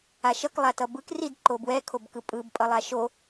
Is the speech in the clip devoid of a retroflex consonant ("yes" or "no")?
yes